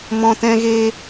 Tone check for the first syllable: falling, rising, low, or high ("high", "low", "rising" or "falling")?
low